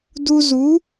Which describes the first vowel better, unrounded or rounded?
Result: rounded